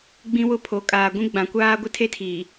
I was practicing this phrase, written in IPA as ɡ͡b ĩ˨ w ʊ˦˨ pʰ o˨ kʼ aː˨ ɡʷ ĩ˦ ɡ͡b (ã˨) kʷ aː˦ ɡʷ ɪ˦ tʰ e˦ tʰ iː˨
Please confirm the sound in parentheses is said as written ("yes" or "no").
yes